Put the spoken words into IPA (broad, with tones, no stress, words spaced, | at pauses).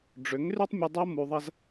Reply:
ɖ͡ʐʏ˨˦ŋry˦tˤ mʲu˧dˤo˦ mu˧ðˤɐ˦z